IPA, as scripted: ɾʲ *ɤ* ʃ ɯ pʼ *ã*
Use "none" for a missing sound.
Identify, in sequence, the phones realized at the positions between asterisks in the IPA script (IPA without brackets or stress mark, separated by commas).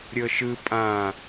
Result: ɤ, ã